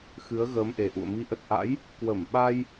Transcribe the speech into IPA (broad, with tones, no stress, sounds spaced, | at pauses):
x ɨ˨˦ ə̯ ɣ əː˨˦ m ʔ e˨˩ ʔ ṵ˧˨ ə̯ m i˨˦ ʔ ə˨˩ t̚ ʔ a̰˧˥ j | k w ə˧˩ m ɓ a˧ j